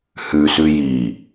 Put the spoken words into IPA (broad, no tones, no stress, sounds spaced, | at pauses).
h ʉ s ʉ j i